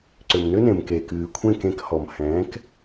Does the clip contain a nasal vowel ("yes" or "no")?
yes